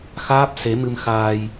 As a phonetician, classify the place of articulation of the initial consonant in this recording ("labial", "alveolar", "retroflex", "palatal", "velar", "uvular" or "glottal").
velar